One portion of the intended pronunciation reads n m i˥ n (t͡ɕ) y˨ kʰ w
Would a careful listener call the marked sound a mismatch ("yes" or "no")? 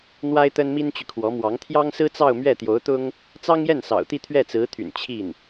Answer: no